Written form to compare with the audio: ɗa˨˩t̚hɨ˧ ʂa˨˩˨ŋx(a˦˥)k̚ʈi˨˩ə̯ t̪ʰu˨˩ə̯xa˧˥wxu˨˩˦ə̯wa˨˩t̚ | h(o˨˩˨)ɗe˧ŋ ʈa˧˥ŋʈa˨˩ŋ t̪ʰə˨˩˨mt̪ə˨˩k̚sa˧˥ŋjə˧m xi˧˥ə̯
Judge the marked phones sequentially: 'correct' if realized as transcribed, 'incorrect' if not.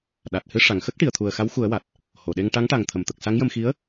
incorrect: ə˦˥, correct

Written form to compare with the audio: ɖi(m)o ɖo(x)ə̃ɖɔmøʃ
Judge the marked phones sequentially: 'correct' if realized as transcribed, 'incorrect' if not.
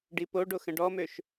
incorrect: p, correct

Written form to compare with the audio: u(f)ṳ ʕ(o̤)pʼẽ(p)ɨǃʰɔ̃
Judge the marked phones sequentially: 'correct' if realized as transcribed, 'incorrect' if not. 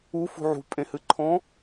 correct, incorrect: ṳ, incorrect: h

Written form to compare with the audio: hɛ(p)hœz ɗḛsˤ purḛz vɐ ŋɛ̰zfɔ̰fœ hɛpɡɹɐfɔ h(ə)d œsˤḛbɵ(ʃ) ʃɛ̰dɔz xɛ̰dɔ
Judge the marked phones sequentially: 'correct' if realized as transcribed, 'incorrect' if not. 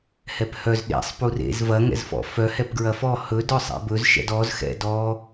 correct, incorrect: ɵ, incorrect: z

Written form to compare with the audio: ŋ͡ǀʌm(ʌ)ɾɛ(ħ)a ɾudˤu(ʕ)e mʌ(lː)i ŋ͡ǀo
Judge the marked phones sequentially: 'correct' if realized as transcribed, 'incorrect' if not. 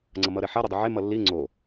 correct, correct, correct, correct

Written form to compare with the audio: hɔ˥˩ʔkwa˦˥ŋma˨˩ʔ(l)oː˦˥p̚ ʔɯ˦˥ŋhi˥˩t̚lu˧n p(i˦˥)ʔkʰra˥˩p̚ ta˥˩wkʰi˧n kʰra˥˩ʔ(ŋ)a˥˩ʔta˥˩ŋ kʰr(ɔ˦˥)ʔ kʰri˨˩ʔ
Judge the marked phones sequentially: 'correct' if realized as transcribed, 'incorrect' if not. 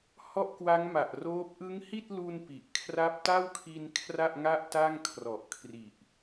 incorrect: r, incorrect: i˨˩, correct, incorrect: ɔ˨˩

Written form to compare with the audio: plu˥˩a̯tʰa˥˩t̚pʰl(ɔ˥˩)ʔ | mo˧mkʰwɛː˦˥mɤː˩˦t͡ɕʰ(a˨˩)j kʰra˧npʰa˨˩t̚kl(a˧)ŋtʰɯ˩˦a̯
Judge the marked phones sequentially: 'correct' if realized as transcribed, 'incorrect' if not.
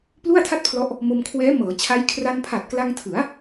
incorrect: ɔ˦˥, incorrect: a˦˥, correct

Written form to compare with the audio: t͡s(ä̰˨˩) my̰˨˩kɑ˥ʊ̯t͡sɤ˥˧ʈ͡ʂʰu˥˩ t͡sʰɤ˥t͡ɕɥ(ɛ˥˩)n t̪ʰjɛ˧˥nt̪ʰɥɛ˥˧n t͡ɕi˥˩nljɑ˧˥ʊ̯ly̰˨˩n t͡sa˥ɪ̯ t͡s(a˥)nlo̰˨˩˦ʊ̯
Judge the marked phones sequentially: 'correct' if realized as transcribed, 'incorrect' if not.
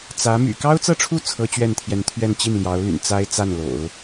incorrect: ä˧˥, correct, incorrect: a˥˩

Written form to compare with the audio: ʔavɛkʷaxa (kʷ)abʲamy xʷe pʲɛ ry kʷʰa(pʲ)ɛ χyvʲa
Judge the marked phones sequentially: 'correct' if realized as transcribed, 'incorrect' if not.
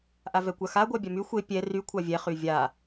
incorrect: ɡʷ, incorrect: vʲ

